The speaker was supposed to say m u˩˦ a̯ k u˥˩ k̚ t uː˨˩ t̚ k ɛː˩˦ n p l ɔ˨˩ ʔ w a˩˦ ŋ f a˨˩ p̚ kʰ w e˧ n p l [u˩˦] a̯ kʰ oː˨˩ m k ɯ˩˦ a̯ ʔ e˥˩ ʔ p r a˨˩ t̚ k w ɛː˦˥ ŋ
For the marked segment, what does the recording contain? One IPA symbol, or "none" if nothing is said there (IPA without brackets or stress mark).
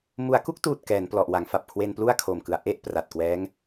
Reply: u˥˩